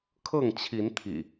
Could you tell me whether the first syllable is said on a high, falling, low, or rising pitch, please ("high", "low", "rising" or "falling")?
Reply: falling